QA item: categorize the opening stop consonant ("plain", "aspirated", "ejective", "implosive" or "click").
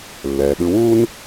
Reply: implosive